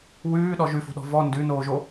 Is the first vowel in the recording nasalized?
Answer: no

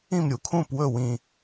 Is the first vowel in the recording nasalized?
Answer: yes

